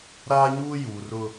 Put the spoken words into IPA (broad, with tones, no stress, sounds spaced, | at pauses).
ɾ aː˦ ɲ uː˦ j uː˨ r ʊ˦